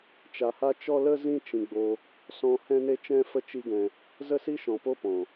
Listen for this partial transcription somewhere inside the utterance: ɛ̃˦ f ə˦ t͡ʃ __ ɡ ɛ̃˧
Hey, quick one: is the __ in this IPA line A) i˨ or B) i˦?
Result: B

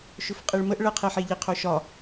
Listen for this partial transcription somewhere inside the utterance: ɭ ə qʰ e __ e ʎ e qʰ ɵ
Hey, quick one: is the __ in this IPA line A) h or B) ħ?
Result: B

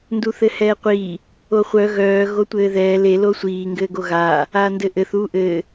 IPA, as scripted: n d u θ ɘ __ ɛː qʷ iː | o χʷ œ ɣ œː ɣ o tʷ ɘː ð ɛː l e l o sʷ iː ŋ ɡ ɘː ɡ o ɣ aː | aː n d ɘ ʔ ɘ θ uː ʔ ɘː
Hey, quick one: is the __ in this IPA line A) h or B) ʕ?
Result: A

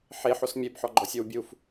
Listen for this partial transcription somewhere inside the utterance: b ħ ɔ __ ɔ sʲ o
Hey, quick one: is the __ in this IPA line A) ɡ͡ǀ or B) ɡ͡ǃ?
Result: B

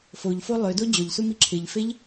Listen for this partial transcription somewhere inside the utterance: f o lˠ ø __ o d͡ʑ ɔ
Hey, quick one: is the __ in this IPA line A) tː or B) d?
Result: B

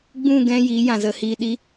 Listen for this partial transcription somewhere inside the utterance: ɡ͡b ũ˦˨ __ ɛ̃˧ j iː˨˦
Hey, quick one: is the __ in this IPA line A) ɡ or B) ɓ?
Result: A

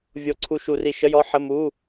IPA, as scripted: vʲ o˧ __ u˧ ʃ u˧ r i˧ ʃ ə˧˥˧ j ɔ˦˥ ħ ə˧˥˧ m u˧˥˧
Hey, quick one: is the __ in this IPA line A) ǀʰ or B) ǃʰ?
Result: A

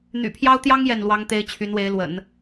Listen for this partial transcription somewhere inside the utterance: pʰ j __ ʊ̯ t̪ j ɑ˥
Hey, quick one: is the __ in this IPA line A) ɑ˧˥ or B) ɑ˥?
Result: B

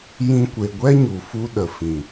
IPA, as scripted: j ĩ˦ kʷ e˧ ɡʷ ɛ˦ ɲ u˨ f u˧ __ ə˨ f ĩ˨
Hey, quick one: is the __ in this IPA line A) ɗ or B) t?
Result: A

